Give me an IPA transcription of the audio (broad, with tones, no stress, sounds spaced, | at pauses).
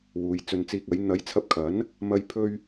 w uː˨˧ j t͡s ɵ˧ n t͡s iː˧ k̚ ɐ˨˥ j n̪ ɐ˨˥ j t͡sʰ ɐ˧ p̚ kʰ ɐ˨˥ n | m ɐ˧ j pʰ ɵ˥ ɥ